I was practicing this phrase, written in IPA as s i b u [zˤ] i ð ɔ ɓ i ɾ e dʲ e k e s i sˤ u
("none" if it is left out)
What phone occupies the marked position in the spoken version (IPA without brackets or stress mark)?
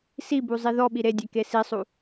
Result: zˤ